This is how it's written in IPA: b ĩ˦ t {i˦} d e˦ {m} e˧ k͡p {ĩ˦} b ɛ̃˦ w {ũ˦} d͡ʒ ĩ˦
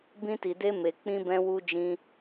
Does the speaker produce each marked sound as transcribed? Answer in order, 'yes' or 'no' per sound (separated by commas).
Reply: no, yes, yes, no